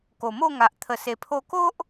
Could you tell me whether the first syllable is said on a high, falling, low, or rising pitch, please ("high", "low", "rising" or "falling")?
low